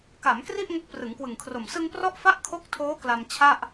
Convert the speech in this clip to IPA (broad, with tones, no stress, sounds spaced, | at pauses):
k a˩˦ m k r i˥˩ ʔ ŋ o˦˥ k̚ p r ɯ˩˦ ŋ k w ɯ˨˩ ŋ kʰ r o˨˩ m s ɯ˧ ŋ p r ɔ˦˥ ʔ f a˦˥ ʔ kʰ o˦˥ k̚ tʰ oː˦˥ k l a˧ m t͡ɕʰ a˥˩ ʔ